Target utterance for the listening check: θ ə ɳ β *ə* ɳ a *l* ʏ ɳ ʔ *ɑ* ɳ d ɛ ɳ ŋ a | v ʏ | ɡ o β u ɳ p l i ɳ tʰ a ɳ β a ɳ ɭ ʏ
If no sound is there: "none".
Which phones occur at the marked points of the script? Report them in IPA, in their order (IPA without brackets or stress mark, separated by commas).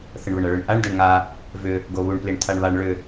ə, ɭ, a